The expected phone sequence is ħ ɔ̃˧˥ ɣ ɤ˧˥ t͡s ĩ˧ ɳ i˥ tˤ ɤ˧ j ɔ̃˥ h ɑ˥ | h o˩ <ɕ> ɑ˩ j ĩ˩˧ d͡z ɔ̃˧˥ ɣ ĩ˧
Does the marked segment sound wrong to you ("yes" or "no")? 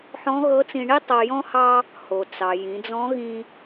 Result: yes